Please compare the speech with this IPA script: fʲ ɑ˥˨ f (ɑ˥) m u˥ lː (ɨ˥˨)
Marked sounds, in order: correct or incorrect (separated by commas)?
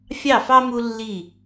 correct, incorrect